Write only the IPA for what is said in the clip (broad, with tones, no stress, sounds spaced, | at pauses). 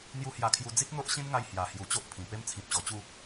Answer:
n̪ j u˦ h j a˧ kʰ j u˧ d͡z i˦ k̚ n̪ o˦ ʔ ɕ ĩ˦ n ŋ a˧ j h j a˨˩ h j u˨˩ t͡ɕ o˦ ʔ pʰ ĩ˨˩ p e˦ m t͡sʰ ĩ˨ p̚ ɕ ɔ˨˩ t͡ɕ u˥˧